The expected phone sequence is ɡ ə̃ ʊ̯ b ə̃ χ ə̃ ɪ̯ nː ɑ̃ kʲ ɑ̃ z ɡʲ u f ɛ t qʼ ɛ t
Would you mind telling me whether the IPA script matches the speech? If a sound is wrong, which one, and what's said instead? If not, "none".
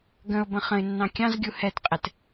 f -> h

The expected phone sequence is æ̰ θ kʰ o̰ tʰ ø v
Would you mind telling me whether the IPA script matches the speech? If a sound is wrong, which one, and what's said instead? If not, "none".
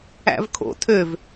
θ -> v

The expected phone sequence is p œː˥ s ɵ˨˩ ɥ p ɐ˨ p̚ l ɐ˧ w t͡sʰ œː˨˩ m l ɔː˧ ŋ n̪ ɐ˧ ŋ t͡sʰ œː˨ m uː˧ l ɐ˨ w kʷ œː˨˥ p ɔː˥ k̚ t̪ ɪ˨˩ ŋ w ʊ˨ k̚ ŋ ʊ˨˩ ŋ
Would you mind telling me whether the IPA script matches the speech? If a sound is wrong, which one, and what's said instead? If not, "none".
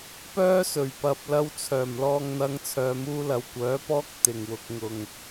none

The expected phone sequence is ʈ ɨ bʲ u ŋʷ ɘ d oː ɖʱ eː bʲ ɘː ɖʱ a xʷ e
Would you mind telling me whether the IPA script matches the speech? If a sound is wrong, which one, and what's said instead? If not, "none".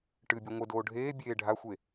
ɘː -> eː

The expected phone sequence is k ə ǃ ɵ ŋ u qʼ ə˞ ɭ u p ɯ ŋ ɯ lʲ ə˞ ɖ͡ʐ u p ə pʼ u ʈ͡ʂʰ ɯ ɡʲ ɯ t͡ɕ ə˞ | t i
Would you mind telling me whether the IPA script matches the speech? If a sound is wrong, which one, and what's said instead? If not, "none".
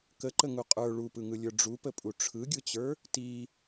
ɵ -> ə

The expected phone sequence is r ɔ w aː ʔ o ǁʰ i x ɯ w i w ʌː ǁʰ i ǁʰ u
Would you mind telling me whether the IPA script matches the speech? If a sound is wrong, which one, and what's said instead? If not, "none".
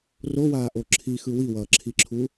ɔ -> o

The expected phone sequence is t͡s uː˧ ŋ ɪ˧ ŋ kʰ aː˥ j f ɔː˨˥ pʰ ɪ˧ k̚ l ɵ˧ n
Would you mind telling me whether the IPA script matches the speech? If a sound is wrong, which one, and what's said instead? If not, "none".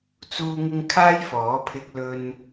none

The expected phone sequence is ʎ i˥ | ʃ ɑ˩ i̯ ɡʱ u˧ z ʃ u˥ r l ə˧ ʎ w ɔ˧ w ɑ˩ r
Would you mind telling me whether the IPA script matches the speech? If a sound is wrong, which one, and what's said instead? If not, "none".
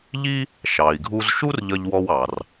l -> ʎ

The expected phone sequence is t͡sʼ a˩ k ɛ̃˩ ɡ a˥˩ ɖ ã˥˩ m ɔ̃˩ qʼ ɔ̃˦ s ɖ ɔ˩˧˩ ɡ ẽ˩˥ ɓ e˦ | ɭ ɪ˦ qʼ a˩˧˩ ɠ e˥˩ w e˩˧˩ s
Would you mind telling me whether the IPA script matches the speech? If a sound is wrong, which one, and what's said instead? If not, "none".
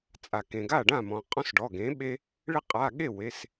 ɛ̃˩ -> ẽ˩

